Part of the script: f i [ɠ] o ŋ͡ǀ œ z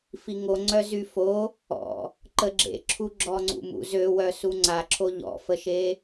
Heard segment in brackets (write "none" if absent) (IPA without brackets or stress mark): ŋ